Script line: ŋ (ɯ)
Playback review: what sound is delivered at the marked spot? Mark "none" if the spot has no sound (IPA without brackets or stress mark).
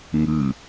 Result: ɯ